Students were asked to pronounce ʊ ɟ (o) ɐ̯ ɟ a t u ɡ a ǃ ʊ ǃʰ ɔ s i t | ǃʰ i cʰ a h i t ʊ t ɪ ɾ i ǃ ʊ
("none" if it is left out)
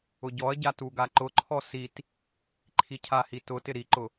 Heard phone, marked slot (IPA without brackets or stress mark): ɔ